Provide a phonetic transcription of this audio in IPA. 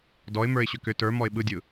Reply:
d ɔ ɪ̯ m ə˞ ɪ̯ ɕ ʏ k ʏ t ə˞ m ɔ ɪ̯ ɓ ɯ dʲ ɯ

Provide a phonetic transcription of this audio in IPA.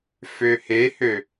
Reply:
f ø h e h ø

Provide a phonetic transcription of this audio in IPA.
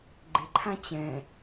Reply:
ɡ͡ǃ ɪ ǃʰ ã t͡ɕ ɛ̃

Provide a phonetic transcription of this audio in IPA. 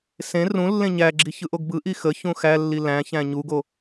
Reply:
s ẽ r ũ lː ẽ ɲ æ ɡ͡ǁ i ç ɯ ʔ o ɡ b ɯ ʔ i x ə ç ũ x æ lː i l æ̃ ç æ̃ ɲ u ɡ o

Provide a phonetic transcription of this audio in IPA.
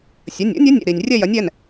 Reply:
sʲ ɐ˩˧˩ nʲ o̰˧˥ nʲ ɐ˧˥ nʲ ɛ̰˩˧˩ ɾ i˩ nʲ rʲ ɛ˦˨ j ɐ˩˥ nʲ ɛ˩˧˩ n

